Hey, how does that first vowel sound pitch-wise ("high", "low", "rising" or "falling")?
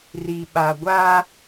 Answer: low